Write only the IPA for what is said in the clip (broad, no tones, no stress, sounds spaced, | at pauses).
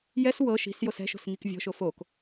j ɛ s w ɤ ʃ i̤ s j o s ɛ̤ ʃ o̤ s ŋ i k vʲ ɔ̤ ʃ o f o k